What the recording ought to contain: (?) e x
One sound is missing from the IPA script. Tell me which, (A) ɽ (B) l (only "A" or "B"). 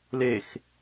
B